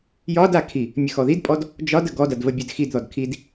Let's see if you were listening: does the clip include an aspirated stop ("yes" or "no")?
yes